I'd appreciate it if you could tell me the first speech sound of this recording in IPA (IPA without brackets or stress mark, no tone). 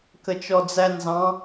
k